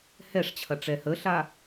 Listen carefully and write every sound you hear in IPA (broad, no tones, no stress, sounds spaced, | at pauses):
h ɛ ʂ t͡ɕʰ ɐ ʈ͡ʂ ɛ h ə ɬ a